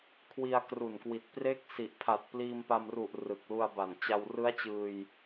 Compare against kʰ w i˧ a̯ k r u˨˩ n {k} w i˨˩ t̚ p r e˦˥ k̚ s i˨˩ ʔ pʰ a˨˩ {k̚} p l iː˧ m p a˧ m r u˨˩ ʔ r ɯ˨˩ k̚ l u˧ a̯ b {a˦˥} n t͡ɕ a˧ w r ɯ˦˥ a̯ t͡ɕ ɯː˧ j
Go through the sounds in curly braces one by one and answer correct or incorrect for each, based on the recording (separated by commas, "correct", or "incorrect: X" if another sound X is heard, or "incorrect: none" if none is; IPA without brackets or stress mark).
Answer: correct, incorrect: t̚, incorrect: a˨˩